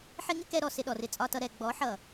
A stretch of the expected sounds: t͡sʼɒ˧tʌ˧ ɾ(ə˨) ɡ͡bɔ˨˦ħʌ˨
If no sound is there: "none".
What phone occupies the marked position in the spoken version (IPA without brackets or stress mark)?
ɛ˨